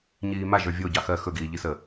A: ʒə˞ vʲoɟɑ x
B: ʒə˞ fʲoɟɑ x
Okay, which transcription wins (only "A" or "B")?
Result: A